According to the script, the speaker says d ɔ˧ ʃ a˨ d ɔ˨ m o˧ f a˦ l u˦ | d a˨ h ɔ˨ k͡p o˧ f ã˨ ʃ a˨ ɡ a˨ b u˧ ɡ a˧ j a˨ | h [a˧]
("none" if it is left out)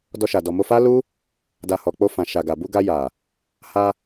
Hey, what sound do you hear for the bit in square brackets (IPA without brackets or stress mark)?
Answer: a˧